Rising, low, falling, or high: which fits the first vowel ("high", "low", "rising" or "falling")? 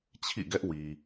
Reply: falling